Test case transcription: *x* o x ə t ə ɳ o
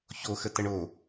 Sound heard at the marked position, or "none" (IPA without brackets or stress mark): ç